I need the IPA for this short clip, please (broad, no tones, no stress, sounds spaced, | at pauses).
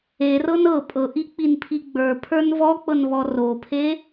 e r ɤ n ɤ pʼ ɤ ʔ i k͡p i n pʰ i ɡ͡b ə˞ pʰ ə˞ n v ɔ k͡p ɤ n β ɔ r o pʰ e